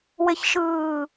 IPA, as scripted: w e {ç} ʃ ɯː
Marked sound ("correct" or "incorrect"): correct